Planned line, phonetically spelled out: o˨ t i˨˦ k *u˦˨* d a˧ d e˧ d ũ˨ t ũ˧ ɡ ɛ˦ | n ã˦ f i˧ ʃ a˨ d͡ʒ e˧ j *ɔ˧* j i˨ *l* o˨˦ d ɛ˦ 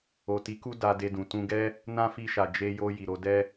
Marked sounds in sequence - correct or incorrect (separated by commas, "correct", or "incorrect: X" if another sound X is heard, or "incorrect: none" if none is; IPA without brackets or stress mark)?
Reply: incorrect: u˦, incorrect: o˧, incorrect: ɾ